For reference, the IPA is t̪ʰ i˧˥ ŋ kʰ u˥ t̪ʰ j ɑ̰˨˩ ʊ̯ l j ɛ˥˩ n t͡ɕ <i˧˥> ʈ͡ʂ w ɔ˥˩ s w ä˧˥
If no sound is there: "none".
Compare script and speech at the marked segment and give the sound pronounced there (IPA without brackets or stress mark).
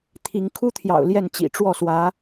ḭ˨˩